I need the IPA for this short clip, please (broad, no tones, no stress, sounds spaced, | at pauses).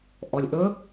ʔ ɔ lʲ ʔ ɵ